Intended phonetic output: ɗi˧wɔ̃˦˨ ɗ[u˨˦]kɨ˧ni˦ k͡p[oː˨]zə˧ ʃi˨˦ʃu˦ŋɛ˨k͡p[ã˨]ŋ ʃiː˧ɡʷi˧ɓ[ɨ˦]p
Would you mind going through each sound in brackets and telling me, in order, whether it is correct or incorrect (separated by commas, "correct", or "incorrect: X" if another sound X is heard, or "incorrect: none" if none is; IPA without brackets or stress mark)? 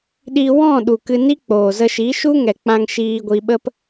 incorrect: u˨, correct, incorrect: ã˧, incorrect: ə˦